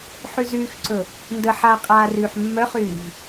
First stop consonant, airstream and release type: click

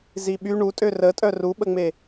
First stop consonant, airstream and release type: implosive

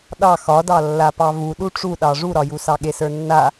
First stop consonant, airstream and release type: implosive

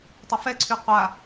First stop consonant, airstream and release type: plain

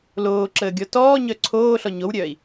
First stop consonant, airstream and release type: click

